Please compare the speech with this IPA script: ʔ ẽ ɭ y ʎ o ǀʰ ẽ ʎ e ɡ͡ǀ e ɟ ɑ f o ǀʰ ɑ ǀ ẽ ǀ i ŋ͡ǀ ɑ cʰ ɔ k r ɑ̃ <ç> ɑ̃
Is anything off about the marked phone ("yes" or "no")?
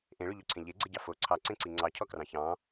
no